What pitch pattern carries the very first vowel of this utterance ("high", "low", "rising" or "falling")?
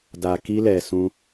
low